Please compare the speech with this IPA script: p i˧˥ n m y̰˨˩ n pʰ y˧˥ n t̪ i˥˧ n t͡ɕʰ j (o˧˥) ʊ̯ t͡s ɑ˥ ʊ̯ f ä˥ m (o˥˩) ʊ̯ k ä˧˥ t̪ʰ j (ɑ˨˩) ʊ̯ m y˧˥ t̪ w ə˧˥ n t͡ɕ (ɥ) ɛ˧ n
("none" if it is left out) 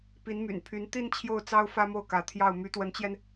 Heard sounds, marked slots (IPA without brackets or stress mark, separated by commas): o˥˩, o˥˩, ɑ˥˩, j